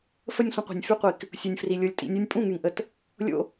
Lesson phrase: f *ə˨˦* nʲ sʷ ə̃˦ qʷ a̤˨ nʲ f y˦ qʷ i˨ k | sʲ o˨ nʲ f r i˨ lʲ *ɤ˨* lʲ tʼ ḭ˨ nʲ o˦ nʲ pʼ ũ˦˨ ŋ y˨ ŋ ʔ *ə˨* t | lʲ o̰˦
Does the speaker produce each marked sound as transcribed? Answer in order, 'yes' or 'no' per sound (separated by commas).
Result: no, no, yes